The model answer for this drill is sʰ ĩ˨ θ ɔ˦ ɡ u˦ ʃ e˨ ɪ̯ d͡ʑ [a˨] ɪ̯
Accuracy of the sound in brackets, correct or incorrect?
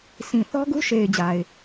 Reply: correct